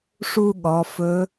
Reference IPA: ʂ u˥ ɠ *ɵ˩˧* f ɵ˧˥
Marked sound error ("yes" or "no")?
yes